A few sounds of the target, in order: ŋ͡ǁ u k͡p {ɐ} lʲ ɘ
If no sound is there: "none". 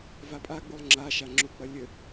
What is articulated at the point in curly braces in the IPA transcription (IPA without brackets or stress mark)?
ɐ